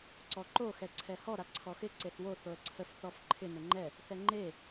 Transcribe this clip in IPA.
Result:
ǀɔǃo xɛǀʰɛhɔ ɾaǀʰɔxɪ ǀeθwo θoə̯ǀʰəf θɔfǃʰɪ nəŋ͡ǃɛ | θɛŋ͡ǃe

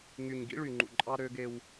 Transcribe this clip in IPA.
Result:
ŋy˨ɲɡḭ˦ ɭy˨ŋ͡ǃṵ˨ǃʼɑ˦ ɾø˦ɡe˦w

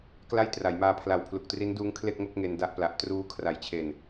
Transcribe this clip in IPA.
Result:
kla˥˩jtra˩˦jmaː˧pʰla˨˩w pʰlu˨˩k̚tri˦˥nduː˦˥ŋ kʰle˥˩k̚ŋo˥˩k̚ ŋe˧n da˥˩ʔpla˨˩ʔ truː˦˥ kʰra˩˦jt͡ɕʰe˨˩n

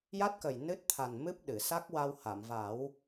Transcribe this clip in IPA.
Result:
ja˦˥t̚kə˨˩j nɨ˦˥t̚t̪ʰa˨˩n mɨ˦˥p̚ɗɨ˨˩˨ sa˦˥k̚wa˧wha˨˩˨mva˨˩˦w

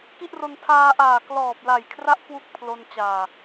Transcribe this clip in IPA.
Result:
ki˥˩ʔro˧n tʰaː˧ʔaː˨˩ klɔː˨˩p̚la˨˩jkʰra˦˥ʔ kwu˥˩k̚pʰlo˧n t͡ɕaː˨˩

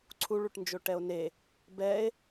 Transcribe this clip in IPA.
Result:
ǀʰuɭuʈnd͡ʒo ʈɛo̯ne | bɛe̯

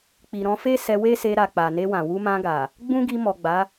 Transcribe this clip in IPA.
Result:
k͡pi˨ɾɔ̃˧fe˦ sɛ˧we˦se˧ɾa˨ k͡pa˨ne˧wã˨ wu˧mã˧ɡa˨ | ɡ͡bũ˦ɡi˧mɔ˨ ɡ͡ba˨˦

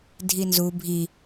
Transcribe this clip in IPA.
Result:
dʱinzu bʱi

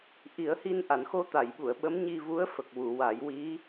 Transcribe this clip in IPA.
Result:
ʔi˨˩˦ə̯hi˧nʔa˨˩˨n xo˧t̪a˨˩˨jɓu˨˩˨ə̯ ɓə˧˥m ɲi˧vu˧˥ə̯ fə˨˩k̚wu˨˩˨wa˨˩˦j wi˧˥

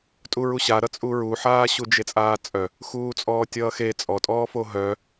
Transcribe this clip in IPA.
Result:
tʼuɹuɕaɾʌ t͡sʼuɹuħaː ɕud͡ʒet͡sʼaːt͡sʼœ | xuːt͡sʼɔːtʲʌːxe t͡sʼɔtʼɔːfo ɦœ

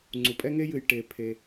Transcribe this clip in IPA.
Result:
ŋ͡ǀu˩pʼɛ˥ŋe˥jɨ˩j ʈe˩ pʰe˩

